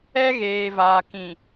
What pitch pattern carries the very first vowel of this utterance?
high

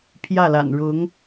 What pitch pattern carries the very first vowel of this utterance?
falling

